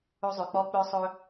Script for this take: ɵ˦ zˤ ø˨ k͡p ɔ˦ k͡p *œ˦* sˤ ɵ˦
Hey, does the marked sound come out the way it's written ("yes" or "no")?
yes